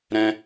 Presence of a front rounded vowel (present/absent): absent